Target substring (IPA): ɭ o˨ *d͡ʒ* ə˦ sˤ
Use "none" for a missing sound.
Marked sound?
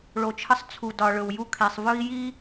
t͡ʃʰ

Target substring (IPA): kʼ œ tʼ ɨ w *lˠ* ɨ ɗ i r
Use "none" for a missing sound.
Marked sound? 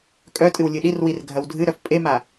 lʲ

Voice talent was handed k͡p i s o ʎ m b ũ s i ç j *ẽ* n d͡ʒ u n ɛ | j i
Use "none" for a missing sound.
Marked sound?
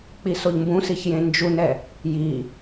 ẽ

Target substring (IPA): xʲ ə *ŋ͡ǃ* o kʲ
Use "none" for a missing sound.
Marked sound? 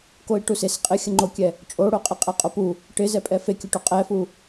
ŋ͡ǃ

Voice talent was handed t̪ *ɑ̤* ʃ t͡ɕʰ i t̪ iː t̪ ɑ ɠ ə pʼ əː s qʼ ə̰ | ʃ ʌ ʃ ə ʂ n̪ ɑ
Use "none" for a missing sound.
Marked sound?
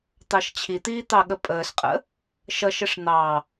ɑ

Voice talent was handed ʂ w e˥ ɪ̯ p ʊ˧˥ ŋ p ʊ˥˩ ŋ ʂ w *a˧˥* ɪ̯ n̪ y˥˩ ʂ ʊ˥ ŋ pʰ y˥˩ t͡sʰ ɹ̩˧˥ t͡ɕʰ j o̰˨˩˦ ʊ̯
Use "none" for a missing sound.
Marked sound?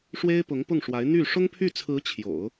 a˧˥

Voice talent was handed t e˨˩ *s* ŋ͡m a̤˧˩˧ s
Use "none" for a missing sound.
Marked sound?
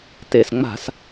s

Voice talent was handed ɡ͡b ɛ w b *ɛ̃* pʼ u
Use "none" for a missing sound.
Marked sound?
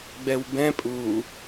ɛ̃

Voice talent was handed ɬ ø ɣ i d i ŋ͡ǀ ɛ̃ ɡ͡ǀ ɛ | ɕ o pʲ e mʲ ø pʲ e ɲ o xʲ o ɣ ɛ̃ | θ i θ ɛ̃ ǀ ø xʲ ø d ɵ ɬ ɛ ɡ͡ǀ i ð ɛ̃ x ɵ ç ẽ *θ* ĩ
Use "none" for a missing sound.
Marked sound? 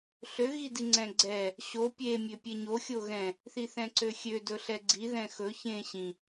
ɕ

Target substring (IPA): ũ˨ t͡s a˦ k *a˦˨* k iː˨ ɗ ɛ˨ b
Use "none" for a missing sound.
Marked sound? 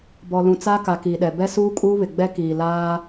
a˨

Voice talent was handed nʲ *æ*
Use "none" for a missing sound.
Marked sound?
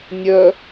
œ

